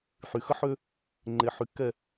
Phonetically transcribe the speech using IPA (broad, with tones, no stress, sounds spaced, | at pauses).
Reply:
ħ y˨ x ə˦ ħ ø˦ | ŋ͡ǃ e˨ ħ y˨ kː ɛ˨